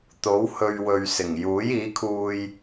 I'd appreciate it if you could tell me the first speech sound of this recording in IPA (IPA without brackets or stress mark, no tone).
t̪